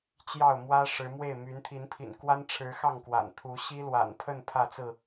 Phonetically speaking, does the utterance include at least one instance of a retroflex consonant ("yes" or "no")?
yes